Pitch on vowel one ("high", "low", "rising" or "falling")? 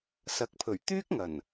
rising